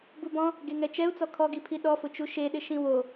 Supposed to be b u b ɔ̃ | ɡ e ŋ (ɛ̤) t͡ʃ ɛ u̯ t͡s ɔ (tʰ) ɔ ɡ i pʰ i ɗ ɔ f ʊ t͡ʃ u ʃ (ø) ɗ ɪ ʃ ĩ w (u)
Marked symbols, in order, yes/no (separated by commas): no, no, no, no